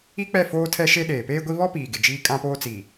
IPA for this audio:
i˦ k͡p ɛ˦˨ f oː˦ tʰ ɛ˦ ʃ e˦ ɗ eː˨ p eː˦ ɡʷ i˦ β ɔ˦ p iː˨ ɡ ɪ˨ d͡ʒ iː˦ kʼ ã˦ p oː˦ t͡s i˨

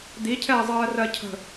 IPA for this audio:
d̪ i cʰ ɛː zˤ ɜː r ɜ cʰ ə̤

